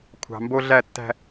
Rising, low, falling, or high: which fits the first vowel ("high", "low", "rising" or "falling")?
low